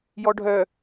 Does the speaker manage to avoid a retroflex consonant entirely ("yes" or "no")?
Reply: no